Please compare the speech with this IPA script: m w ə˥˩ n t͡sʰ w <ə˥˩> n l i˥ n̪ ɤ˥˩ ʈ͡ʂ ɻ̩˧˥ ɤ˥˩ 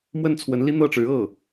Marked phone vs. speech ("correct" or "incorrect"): incorrect